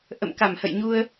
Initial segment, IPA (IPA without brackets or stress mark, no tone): ʔ